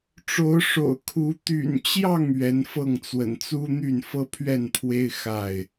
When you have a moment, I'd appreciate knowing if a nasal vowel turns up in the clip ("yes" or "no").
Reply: no